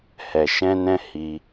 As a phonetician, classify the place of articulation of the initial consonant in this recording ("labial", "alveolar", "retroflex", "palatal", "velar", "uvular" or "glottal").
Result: glottal